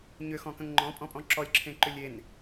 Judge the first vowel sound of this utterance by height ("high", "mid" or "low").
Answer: high